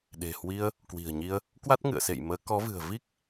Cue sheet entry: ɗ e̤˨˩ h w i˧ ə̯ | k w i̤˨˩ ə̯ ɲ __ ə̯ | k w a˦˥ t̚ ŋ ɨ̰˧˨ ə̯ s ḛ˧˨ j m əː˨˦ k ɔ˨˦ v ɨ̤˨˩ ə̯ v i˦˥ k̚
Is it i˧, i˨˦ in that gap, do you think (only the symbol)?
i˧